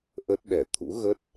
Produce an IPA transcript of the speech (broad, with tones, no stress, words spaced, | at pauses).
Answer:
ʔə˦˥t̚ɗɛ˧˩ t̪ʰṵ˧˥ɣə˦˥t̚